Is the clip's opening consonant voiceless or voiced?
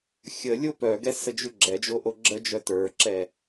voiceless